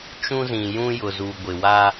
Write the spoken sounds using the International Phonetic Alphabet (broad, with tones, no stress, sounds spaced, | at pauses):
t͡ʃ ũ˦ z ĩ˨ j ũ˦ j ʊ˨ z uː˨ ɡʷ ɪ˨ w a˦